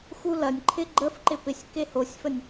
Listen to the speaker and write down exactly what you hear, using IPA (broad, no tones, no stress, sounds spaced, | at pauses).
x u l ɐ nʲ ǃʰ ɪ ɡ͡ǃ ə f ǃ ɪ p ɪ sʲ k e h o sʲ f ə nʲ